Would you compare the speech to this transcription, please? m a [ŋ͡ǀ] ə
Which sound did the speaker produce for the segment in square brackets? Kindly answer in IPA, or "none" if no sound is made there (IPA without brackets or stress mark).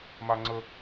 ŋ͡ǀ